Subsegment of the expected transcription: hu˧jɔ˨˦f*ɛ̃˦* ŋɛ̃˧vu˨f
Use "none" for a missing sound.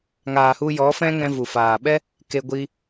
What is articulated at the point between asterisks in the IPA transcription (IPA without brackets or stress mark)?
ɛ̃˦